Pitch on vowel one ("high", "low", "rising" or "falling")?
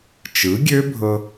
rising